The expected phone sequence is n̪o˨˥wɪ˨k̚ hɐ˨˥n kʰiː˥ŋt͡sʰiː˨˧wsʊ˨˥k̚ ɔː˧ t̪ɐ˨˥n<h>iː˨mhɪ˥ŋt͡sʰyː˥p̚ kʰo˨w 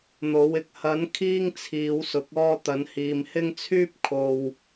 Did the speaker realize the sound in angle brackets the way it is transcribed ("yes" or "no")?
yes